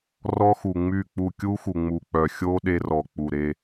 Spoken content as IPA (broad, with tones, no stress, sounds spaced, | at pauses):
r ɔ˦ x u˨ ŋ͡m y˦˨ k͡p u˦˨ kʲ u˦ x u˨ ŋ͡m u˨ k͡p œ˨ xʲ o˦ ɗ e˦ r ɔ˨ k͡p u˨ ɾ e˦